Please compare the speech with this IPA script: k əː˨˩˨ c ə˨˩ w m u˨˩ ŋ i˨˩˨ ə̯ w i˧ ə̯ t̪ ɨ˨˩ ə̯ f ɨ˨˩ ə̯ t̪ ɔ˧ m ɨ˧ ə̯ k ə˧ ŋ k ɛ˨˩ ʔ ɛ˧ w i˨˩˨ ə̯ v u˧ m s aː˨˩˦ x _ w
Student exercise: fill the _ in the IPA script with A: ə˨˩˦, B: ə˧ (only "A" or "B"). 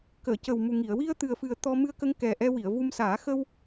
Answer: B